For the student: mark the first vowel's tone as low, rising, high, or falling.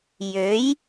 rising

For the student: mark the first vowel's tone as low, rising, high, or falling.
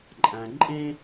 low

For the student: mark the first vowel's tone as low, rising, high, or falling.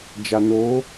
low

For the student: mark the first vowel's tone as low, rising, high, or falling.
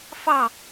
falling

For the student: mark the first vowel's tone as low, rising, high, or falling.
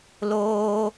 high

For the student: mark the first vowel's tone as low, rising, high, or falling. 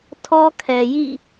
high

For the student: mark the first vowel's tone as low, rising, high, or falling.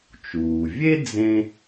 low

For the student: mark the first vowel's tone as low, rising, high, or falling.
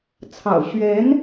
low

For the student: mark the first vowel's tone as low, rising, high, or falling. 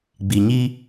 low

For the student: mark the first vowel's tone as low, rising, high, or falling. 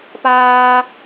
high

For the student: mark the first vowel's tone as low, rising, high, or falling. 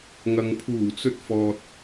low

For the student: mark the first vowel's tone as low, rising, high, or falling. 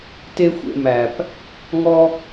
high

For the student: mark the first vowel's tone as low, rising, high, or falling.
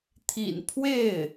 low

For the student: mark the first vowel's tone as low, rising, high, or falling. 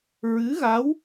rising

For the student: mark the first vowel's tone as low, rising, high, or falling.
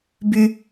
high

